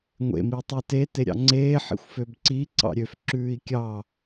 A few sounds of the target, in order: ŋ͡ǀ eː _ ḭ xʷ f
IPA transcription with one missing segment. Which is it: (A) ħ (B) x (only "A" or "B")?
A